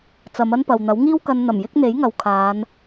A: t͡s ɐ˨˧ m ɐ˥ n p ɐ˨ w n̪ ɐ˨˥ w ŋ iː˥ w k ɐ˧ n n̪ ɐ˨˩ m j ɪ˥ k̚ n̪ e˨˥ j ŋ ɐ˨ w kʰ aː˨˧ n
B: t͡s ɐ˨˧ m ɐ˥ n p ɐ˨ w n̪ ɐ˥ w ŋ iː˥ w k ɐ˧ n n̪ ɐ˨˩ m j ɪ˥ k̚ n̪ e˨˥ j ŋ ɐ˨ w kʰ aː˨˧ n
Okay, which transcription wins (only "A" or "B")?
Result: A